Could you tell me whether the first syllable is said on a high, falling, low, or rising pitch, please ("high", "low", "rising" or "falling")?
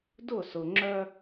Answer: falling